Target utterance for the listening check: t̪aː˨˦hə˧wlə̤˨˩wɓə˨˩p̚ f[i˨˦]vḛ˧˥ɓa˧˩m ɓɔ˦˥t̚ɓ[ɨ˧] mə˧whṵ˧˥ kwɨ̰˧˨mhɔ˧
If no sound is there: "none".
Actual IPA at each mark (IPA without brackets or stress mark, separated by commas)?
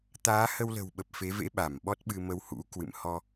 e˨˦, ɨ˧